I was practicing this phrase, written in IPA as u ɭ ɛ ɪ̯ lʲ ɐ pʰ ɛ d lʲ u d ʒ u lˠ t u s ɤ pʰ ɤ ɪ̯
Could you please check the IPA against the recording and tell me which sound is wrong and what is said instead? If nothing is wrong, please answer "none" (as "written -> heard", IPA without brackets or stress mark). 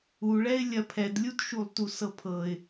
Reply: ʒ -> ʃ